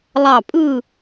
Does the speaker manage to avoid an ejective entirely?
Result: no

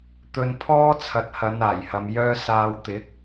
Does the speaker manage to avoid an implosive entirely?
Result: yes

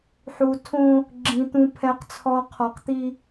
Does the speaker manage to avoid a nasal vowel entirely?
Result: no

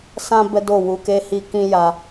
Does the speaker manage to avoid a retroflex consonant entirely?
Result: yes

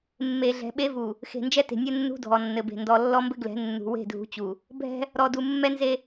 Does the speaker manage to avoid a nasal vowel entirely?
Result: yes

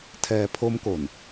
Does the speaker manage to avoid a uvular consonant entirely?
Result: yes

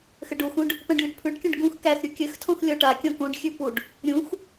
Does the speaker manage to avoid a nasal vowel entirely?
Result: no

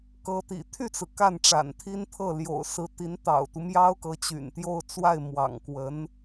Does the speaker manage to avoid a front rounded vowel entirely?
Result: no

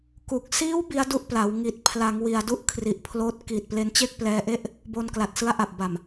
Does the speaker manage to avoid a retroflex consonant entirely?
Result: yes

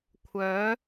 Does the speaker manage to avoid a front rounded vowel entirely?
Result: no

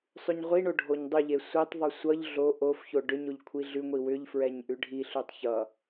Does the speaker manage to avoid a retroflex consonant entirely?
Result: no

